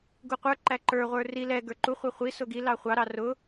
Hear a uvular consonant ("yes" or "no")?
yes